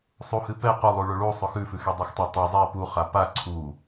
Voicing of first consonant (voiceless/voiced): voiceless